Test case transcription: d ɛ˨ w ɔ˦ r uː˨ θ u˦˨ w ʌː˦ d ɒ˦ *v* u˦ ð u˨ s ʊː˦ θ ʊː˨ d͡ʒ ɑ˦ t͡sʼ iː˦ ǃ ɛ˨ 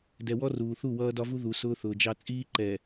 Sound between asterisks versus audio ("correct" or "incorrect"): correct